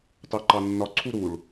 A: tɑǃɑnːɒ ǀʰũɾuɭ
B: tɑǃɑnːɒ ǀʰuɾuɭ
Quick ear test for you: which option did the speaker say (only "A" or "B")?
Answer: B